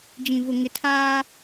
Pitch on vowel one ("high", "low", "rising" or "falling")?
low